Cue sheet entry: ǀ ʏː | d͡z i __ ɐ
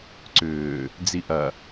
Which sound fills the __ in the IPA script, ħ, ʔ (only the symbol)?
ʔ